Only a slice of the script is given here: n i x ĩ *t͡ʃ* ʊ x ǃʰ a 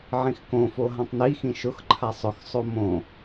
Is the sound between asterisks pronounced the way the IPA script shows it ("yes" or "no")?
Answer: no